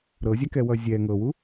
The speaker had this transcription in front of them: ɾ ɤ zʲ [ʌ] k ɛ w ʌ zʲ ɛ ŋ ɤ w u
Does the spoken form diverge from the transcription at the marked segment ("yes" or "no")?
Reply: yes